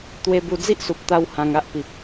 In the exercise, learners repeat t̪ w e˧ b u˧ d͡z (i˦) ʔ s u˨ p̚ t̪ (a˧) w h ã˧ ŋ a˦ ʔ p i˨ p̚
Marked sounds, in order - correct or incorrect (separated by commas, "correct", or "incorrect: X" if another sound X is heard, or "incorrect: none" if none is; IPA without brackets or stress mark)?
correct, correct